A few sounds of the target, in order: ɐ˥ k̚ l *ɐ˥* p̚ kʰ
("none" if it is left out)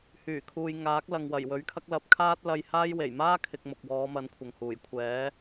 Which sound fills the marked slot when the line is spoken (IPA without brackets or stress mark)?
ɐ˨˥